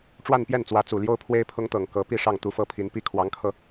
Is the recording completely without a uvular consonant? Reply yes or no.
yes